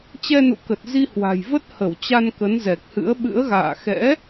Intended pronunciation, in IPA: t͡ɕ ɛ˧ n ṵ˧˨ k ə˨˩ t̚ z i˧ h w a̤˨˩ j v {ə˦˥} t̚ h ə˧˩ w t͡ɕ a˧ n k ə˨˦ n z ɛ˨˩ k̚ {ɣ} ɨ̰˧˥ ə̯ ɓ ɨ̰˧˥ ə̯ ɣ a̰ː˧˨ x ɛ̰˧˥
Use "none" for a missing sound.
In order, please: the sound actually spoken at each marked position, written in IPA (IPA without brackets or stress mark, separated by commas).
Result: ə˦˥, h